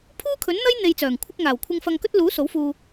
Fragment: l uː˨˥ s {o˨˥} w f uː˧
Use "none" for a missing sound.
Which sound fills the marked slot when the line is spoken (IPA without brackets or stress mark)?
o˨˥